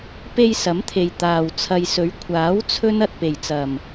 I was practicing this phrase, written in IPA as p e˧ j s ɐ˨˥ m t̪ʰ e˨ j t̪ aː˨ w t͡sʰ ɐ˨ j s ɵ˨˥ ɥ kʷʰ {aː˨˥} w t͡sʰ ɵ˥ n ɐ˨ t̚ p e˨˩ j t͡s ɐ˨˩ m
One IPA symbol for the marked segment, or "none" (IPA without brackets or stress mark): aː˨˥